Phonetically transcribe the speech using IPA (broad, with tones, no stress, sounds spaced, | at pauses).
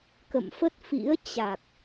k ə̰˧˨ m f ə˦˥ t̚ f ḭ˧˥ ə̯ t͡ɕ a˨˩ k̚